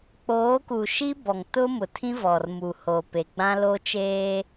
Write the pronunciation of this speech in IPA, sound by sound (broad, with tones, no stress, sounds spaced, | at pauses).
k͡p oː˨˦ k u˨ ʃ i˦ b ɔ˨ ŋ t ʊ˦ m ʊ˨ tʰ ĩ˦ v ɔ˨ r m u˨ h o˨ p e˨ ɡ͡b ã˦ l o˦ t͡ʃ eː˦